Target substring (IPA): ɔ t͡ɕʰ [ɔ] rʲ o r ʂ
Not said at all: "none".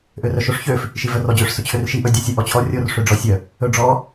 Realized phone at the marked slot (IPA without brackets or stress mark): ɔ